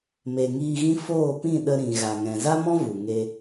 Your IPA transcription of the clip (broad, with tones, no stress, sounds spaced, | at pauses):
m e˨ ŋ iː˧ ɣ ĩ˦ f oː˦˨ p ĩ˦˨ ɗ ə˧ ɾ ĩ˨ ɣ a˨ ŋ ɛ̃˨ z a˦ m ɔ̃˦ v u˨ ŋ e˧